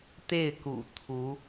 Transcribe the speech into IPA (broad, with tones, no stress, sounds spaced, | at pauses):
t̪ e˥˩ ɪ̯ k ṵ˨˩ t̪ʰ u˧˥